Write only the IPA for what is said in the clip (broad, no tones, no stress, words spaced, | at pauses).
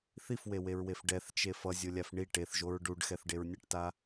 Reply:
θifweweɹwef ɖɛθt͡ʃe fʌzʲolʲaf ɳi ʈeθʒoɹ ɖuɖxɛθɖeɹ nʲʌʈta